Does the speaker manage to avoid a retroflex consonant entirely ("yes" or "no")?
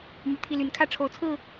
no